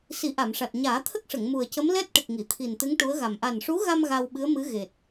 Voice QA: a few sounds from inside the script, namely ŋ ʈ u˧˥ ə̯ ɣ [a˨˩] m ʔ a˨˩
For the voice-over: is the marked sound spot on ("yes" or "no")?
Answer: yes